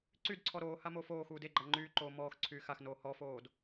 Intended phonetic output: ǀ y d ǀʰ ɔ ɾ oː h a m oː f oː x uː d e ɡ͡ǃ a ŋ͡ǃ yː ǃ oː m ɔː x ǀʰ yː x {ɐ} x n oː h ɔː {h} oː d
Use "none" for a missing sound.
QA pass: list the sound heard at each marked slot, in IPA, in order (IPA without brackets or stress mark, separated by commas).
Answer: a, f